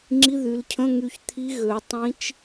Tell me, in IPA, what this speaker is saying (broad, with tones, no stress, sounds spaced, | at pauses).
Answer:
ŋ͡ǁ i˧˥˧ ð y˩˧ l cʰ ə̃˧˥˧ ŋ y˧˩ ç t̪ʰ i˧˥ ɣ ø˩˧ tˤ ĩ˧˥ t͡ʃ